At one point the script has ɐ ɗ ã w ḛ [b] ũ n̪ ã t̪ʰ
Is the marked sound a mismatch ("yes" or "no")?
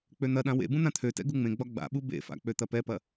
no